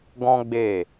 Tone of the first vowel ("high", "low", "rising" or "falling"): high